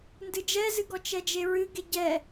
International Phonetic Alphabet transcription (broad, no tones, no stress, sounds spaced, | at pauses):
n d ɨ d͡ʒ ɛ z ɨ ɡ ɔ t͡ʃ ɛ d͡ʒ e ɹ ɨ ɡ e ɟ ɛ